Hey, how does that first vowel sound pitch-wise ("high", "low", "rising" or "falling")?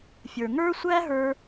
low